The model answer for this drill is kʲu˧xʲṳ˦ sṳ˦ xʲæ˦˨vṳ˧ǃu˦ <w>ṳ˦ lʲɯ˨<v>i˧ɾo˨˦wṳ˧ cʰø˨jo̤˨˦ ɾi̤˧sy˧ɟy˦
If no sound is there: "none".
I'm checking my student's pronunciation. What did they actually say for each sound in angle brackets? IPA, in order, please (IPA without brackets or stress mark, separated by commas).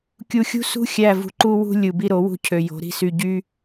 w, b